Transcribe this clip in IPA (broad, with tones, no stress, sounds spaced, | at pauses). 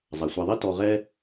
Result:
zˤ a˩ sʷ a˨ ðˤ i˥ t ɔ˨ ʁ ɛ˦